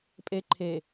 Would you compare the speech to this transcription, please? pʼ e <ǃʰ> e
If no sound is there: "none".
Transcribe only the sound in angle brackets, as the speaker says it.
ǃʰ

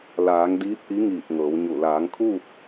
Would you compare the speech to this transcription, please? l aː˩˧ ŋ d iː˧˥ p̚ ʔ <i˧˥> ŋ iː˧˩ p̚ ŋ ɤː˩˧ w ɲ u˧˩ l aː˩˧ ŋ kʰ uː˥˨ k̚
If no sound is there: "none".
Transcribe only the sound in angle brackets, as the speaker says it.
i˧˥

